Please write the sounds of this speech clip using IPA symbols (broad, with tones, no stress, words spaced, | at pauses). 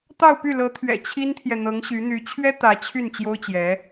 t̪ɑ˥˧ʊ̯py˥˩lɤ˧˥t̪ʰɥɛ̰˨˩ t͡ɕʰi˥nt̪ʰjɛ˨ n̪ɤ˧˥ŋɕy˧˥n̪y˧˥ t͡ɕʰɥɛ˥ t̪ä˧˥t͡ɕʰy˥˩n t͡ɕjo˥ʊ̯t͡ɕjɛ˧˥